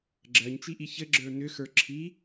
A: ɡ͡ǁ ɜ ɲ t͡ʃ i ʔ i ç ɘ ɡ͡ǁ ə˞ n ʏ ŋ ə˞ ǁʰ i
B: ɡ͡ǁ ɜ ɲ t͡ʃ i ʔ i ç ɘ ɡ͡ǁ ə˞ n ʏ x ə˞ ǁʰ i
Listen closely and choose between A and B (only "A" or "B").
B